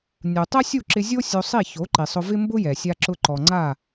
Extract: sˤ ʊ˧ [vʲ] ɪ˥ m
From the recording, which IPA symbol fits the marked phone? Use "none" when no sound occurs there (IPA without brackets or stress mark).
v